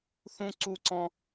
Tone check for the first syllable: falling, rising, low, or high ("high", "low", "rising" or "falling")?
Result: falling